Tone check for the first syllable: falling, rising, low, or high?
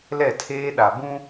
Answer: falling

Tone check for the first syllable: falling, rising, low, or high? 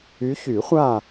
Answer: rising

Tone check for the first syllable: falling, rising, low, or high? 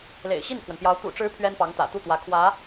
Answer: low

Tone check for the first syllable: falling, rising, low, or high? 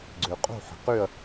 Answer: low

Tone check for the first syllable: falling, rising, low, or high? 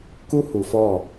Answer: high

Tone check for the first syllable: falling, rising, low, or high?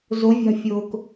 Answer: rising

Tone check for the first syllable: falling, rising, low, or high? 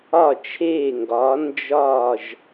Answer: falling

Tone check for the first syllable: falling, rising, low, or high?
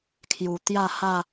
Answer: low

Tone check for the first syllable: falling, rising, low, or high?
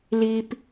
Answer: high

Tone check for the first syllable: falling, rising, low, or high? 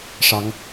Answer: rising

